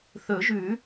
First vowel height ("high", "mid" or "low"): mid